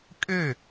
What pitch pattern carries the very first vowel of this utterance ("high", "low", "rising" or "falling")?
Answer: falling